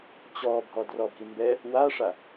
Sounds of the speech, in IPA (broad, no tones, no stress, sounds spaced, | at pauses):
t͡ɕ ɔ bʱ ɔ d r ɔ bʱ i m b ɛ | w a ʂ a